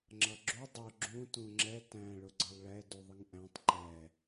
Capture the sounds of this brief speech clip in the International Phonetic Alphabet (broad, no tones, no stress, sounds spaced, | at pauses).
ŋ͡ǁ ʌ ɡ͡ǁ u dˤ ʊ ɡ͡ǁ ũ t ũ ŋ͡ǁ ɛ t æ̃ ɭ ʊ ɡ͡ǀ ʌ lˠ ɭ ɛ d u ðˤ ə ŋ ʔ æ̃ tˤ ǃ ɛ